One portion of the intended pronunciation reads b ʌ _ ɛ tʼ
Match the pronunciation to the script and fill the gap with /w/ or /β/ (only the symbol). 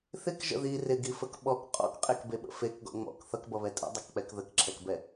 β